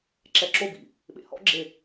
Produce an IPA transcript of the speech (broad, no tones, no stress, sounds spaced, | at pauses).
ǁ ɛ ǁ o b ḭ | ɓ ḛ h ɔ̰ ɡ͡ǁ e